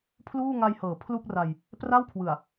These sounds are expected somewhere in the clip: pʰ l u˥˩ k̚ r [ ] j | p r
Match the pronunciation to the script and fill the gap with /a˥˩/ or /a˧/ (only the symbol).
a˧